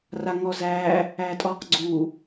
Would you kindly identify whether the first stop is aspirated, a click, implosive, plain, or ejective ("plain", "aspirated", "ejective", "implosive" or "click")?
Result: ejective